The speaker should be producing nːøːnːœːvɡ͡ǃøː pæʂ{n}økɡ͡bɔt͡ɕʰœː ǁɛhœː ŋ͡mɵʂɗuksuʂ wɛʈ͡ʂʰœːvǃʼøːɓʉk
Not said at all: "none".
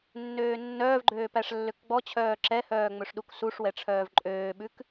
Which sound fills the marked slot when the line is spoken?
lː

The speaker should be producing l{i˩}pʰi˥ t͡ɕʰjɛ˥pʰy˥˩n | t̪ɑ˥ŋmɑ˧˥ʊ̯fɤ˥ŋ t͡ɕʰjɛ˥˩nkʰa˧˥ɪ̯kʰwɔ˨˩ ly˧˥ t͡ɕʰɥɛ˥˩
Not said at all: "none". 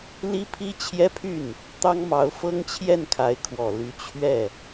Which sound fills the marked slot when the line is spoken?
i˥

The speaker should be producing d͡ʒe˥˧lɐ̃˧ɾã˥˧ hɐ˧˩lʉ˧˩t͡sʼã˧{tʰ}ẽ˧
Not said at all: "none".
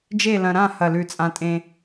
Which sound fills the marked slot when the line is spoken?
tʼ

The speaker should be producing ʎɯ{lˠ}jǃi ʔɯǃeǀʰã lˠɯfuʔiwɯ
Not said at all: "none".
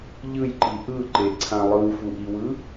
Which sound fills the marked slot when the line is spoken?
none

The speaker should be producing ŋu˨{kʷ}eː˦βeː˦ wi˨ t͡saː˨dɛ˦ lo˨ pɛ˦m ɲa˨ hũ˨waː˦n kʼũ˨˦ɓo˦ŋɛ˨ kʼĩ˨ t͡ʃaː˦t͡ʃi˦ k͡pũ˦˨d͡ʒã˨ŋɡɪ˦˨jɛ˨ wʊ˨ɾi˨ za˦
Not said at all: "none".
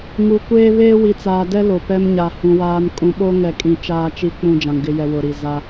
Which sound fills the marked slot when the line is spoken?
kʷ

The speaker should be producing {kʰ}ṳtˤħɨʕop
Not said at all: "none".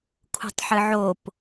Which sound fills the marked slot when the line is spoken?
kʰ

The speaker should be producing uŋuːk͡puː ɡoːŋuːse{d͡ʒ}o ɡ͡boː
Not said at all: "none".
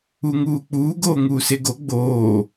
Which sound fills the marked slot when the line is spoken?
ɡ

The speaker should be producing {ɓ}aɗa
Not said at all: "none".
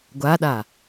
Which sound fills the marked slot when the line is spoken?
ɡʷ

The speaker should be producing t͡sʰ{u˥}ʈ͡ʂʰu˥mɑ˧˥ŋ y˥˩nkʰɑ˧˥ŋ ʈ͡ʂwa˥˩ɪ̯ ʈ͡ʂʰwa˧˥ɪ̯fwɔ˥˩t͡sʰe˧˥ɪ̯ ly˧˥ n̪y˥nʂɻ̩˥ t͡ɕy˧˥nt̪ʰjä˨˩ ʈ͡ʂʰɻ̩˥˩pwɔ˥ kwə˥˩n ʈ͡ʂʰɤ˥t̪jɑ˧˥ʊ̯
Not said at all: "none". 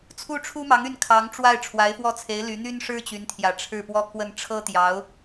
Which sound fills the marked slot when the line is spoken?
u˥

